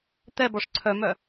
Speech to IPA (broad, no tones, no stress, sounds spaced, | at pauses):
t̪ ɛ b ɔ ʂ ǀʰ œ m œ